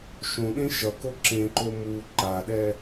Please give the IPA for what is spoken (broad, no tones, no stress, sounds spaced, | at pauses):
ʃ õ ɗ ẽ ʃ ʌ k o ǁ ẽ ǃ o m u ǃ a ɗ ɛ